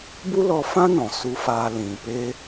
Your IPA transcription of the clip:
b u˦ l ɔ˧ f ã˦ n ɔ̃˨ s u˦ f aː˦ l ĩ˨ p e˦

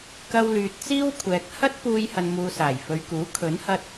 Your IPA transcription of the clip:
k ɐ˧ w l yː˨ t̚ t͡s iː˥ w kʷʰ ɛː˨ k̚ h ɐ˥ t̚ p uː˧ j h ɐ˧ n m uː˧ s aː˨˩ j f ɵ˨ ɥ k uː˨˥ kʰ ɵ˨˥ n h ɐ˧ t̚

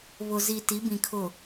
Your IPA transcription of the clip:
β ʊ˨ z i˨ t i˨˦ b ĩ˨ kʰ ʊ˨

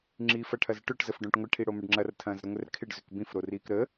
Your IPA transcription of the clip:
ŋ͡ǁ iː f ɐ ʈʰ ɐ z ʈ ʏ ʈ z ə f ɖ õ ʈ ŋʷ ɪ ʈʰ i ɽ o m ə ɖ ŋ͡ǁ ɐ r tʰ ɐ̃ː z ɾ ɐ ŋʷ ɛ r kʰ ɪ ɖ z ʏ k b ĩ f ɾ o r iː k ɾ ə

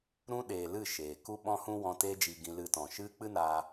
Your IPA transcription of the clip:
ɾ ũ˧ ɗ eː˨ l ɨ˦˨ ʃ eː˨ k u˦ ɓ ɔ̃˦ h ũ˦ w ɔ̃˧ t eː˦ d͡ʒ iː˧ ɡ ĩ˧ l ɨ˧ t ɔ̃˨ ʃ ɨ˦ k͡p ɨ˦ n aː˧

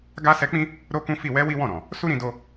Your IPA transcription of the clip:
ɡ a˧ s ɛ˧ k͡p ĩ˦ | ɾ o˦ k ũ˦ f i˦˨ w ɛ˧ w i˦ w ɔ̃˦˨ ɾ ɔ̃˨ | s u˦ ɾ ĩ˧ d o˧

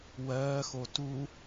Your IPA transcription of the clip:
w ɜː x o t u

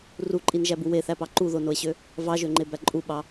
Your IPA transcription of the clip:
r u ǃʼ i n ʒ æ b u w e θ æ p ɑ ǃ u ð o n o e̯ ɕ ø | v ɑ ʒ ø ŋ͡ǃ e b æ ǃʼ u ɓ ɑ

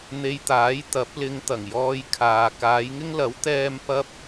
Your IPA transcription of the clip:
n̪ e˧ j t̪ aː˨˥ j t̪ ɐ˨˥ p̚ l ɪ˨˧ ŋ t̪ ɐ˨˩ ŋ j ɔː˧ j kʰ aː˨ k aː˨˧ j ŋ ɪ˥ ŋ l ɐ˨˥ w t̪ ɛː˥ m p ɐ˥ p̚

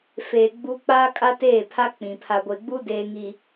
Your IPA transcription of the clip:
f eː˨ ɡ͡b u˦ k͡p aː˦ kʼ a˦ t eː˦˨ pʰ a˦ k͡p ĩ˨ pʰ a˨ ɡʷ e˨ ɡ͡b u˦ d eː˦ ŋ i˨

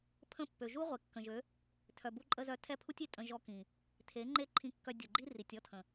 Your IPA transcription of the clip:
pʰ ə̃˦˨ pː ø˨ ʒ u˦ ʁʷ e˨ kː ə̃˨ ʒ ø˨˦ | tʰ œ˨ b u˧ ǃʼ ə˧ z œ˧ tʰ ɛ˦ pʰ u˦ tʲ i˨ tʼ ə̃˧ ʒ ɔ˧ k ĩ˨ | tʰ e˨˦ ŋ͡ǃ e˦ ǃʰ ĩ˧ kː œ˧ dʲ ʊ˨ ɡ͡ǃ i˦ r i˨ tʲ ɔ˦ tʰ ə̃˨

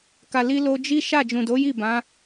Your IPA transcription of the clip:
k a˨ l i˧ l o˧ d͡ʒ i˦ ʃ a˦˨ d͡ʒ ũ˨ d o˨˦ j i˦˨ b ã˨˦

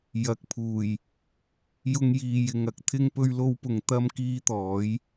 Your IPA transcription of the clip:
j ɐ˨˥ k̚ pʰ uː˨˩ j | j ʊ˥ ŋ j iː˧ j ɪ˨ ŋ ɐ˥ k̚ t̪ʰ ɪ˥ ŋ p ɵ˥ ɥ l o˥ w p ʊ˧ ŋ t̪ ɐ˥ m k iː˥ t̪ ɔː˨˥ j

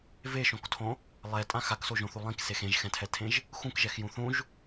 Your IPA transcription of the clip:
v e ʃ õ k tʰ õ | lˠ ɛ tʼ ã x a k s o ʒ õ θ u lˠ ĩ k s e x ẽ ʒ x ɛ̃ tʰ ɛ tʰ ẽ ʒ | x ũ k ʒ ɛ x j ũ θ ũ ʒ

